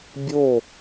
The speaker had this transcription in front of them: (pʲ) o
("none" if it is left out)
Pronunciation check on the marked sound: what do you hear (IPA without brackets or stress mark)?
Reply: bʲ